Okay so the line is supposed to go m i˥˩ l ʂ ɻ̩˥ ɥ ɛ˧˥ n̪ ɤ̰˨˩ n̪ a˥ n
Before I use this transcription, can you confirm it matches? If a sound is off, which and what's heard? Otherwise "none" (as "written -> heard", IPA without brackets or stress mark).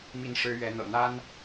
l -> n